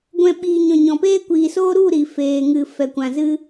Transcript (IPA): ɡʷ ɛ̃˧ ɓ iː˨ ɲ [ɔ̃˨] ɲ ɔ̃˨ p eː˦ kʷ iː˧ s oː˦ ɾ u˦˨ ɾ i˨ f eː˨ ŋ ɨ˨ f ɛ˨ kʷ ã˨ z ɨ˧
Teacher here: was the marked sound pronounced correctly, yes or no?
yes